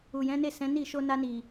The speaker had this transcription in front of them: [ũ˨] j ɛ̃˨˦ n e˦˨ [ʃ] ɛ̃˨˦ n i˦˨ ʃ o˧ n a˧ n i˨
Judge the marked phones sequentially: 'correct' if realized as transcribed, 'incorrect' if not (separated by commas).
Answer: incorrect, incorrect